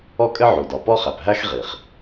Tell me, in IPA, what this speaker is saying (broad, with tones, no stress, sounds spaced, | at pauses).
ɔ˥ kʼ ɘ˥ ʕ u˩ d ɒ˩ p ɔ˥ χ æ˩ p ɦ æ˥ x ʁ i˩ χ